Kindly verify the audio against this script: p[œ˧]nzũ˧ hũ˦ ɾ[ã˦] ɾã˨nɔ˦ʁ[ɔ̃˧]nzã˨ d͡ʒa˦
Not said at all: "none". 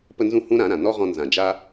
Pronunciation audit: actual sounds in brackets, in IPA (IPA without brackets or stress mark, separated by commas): ə˧, ã˨˦, ɔ̃˧